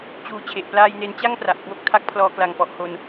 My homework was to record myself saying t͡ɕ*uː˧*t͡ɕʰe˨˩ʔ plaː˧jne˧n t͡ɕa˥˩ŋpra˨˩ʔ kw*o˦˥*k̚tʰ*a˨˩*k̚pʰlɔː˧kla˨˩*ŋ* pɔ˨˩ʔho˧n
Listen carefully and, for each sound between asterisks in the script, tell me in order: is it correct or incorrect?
correct, correct, incorrect: a˦˥, correct

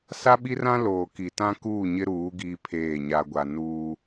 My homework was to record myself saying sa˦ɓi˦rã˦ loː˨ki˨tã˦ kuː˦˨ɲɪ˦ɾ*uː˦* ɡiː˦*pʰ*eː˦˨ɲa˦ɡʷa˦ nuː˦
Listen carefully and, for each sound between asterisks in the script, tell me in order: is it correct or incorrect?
incorrect: uː˨˦, correct

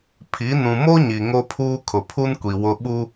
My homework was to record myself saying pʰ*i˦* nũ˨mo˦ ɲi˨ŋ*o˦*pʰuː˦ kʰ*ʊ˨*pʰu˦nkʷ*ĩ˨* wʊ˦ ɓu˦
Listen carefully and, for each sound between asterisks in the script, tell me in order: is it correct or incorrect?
incorrect: i˨˦, correct, correct, incorrect: i˨

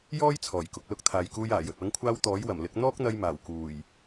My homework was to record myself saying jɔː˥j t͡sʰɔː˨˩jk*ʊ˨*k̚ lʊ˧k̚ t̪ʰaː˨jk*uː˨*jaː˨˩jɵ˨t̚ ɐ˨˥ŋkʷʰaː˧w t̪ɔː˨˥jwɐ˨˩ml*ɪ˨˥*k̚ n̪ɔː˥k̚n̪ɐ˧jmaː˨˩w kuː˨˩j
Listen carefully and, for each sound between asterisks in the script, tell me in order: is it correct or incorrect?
correct, incorrect: uː˧, correct

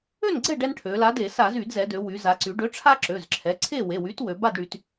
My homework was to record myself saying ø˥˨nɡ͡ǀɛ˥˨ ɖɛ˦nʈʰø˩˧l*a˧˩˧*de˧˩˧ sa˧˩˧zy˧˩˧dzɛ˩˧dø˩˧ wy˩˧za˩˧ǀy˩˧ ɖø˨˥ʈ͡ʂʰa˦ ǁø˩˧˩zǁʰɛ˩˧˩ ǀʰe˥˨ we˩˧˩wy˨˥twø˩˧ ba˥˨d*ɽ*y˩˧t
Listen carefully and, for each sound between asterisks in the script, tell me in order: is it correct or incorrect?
incorrect: a˨˥, correct

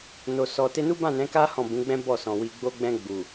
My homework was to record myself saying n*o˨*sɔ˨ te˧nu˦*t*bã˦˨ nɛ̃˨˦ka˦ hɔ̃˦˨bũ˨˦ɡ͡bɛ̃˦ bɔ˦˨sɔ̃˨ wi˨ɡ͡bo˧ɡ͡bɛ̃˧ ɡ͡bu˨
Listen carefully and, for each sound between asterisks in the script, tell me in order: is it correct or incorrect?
correct, incorrect: none

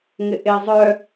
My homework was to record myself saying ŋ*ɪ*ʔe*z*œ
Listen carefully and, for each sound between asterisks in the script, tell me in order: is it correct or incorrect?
correct, incorrect: zˤ

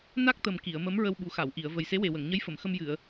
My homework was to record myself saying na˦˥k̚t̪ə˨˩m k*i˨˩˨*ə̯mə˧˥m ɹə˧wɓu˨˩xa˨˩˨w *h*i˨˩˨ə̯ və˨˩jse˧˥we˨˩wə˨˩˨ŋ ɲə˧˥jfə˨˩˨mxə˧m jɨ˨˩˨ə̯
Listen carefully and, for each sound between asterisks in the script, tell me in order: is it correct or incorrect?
correct, incorrect: ʔ

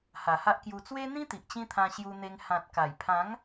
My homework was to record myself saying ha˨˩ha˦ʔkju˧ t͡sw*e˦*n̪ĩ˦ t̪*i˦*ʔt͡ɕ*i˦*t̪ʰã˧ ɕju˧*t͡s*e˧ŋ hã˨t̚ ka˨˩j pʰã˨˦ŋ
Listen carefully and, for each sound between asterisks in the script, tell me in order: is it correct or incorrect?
correct, incorrect: i˨, incorrect: ĩ˦, incorrect: n̪

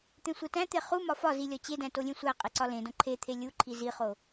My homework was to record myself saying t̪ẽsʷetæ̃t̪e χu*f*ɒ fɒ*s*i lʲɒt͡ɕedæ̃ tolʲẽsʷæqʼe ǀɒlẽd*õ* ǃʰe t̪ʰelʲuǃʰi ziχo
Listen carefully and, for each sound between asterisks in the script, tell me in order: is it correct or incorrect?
incorrect: m, incorrect: z, correct

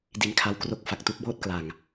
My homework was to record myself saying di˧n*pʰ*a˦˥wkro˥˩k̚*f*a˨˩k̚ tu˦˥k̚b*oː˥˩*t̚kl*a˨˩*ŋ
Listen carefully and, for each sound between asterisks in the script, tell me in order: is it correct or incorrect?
incorrect: kʰ, correct, correct, correct

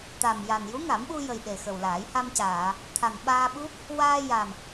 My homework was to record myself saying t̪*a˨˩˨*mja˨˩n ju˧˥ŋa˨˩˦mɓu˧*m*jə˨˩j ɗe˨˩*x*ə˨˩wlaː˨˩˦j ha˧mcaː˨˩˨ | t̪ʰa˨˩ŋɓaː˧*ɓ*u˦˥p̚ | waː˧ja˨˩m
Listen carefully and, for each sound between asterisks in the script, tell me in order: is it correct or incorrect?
incorrect: a˨˩, incorrect: none, correct, correct

